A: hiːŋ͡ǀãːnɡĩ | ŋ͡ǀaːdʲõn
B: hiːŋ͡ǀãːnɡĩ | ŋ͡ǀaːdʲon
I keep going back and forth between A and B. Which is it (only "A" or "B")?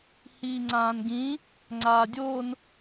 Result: B